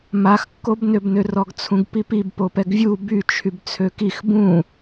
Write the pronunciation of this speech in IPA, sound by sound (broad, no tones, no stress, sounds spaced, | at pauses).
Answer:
m a x kː o b n ø b n ø r ɔ ɡ t͡sʰ ũ ɡ p i p i b p o p ɛ ɡ vʲ u b y t͡ʃʰ y b t͡sʰ ø k i x b ũ